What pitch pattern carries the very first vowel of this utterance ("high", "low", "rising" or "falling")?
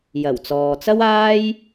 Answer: low